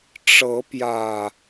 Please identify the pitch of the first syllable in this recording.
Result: rising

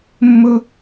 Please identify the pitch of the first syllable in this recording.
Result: high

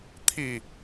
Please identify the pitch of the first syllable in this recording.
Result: falling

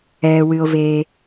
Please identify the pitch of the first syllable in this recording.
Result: low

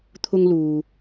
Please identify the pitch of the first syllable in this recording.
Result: high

